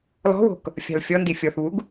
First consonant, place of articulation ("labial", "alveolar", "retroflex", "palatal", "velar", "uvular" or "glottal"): alveolar